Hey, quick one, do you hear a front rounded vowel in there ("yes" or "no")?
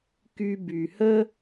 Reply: yes